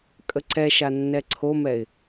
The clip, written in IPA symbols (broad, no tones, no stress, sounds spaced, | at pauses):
kʼ ə ǀ ɛ ʃ a nː ɛ ǀʰ o m ɛ ɪ̯